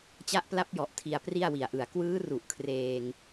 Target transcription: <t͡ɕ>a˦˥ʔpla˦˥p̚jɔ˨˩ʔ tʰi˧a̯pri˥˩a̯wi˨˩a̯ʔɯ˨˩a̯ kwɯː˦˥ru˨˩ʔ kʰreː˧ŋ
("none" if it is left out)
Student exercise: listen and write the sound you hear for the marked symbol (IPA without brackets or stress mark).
t͡ɕ